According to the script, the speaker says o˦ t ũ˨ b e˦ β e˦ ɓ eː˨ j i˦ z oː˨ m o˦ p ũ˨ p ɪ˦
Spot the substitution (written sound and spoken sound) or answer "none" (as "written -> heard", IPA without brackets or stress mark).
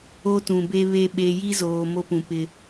eː˨ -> e˨